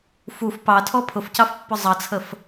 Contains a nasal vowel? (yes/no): no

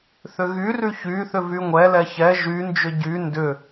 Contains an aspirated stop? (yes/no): no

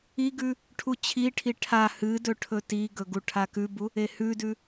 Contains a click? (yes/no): no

